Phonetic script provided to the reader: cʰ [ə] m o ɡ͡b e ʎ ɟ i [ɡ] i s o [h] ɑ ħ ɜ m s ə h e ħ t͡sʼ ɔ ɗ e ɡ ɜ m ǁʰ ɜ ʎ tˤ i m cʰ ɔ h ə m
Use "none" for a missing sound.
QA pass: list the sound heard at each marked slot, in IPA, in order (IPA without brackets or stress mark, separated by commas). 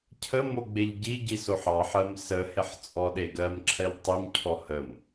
ə, ɟ, ħ